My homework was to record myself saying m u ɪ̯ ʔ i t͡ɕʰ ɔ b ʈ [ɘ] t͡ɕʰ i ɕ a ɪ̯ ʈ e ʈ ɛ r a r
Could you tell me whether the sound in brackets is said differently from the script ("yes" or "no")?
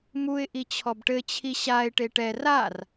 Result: no